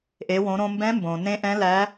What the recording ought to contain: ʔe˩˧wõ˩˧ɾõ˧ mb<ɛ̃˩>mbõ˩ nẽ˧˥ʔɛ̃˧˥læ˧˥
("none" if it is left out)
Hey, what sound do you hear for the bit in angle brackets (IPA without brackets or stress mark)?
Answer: ɛ̃˧˥